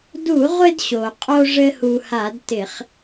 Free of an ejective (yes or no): no